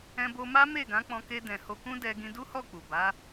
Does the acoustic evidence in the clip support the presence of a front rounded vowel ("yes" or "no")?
no